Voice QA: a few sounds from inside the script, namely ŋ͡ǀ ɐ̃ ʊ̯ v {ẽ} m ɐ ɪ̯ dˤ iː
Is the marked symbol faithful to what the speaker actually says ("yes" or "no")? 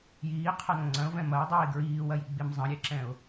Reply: no